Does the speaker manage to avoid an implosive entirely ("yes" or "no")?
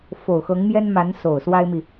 yes